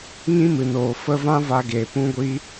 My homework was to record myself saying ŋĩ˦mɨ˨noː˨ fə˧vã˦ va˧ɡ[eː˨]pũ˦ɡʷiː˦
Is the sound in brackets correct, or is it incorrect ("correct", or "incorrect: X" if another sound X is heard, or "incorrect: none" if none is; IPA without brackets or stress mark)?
correct